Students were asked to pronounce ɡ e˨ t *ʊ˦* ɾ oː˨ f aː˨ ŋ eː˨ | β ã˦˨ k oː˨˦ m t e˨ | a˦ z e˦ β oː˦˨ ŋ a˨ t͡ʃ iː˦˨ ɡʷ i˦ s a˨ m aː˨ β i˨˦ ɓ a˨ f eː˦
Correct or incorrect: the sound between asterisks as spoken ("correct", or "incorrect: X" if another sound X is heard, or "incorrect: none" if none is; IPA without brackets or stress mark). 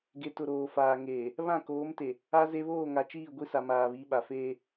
incorrect: ʊ˨